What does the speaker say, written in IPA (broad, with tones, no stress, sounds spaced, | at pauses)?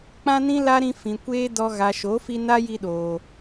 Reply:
k͡p ã˦ n ĩ˦ l a˦ ɾ ĩ˧ f ĩ˨ kʷ eː˦ d ɔ˧ ɣ a˨ ʃ o˨˦ f i˧ n a˦ j i˧ ɗ oː˨